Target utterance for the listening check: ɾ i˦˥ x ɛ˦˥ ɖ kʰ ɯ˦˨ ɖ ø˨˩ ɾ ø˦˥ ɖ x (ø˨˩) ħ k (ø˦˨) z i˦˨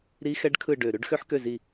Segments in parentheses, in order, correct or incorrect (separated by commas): incorrect, correct